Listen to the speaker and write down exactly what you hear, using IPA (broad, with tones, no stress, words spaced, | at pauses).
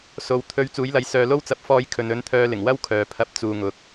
so˨w t̪ʰɵ˨˧ɥ t͡suː˨˥jlɐ˨˥j sœː˨lo˥wt͡sɐ˧p̚ fɔː˧j kʰɵ˨nɵ˨˥nt̪ʰœː˧ lɪ˨˩ŋwɐ˥w kʰœː˨pʰɐ˧p̚ t͡suː˨ ŋʊ˨k̚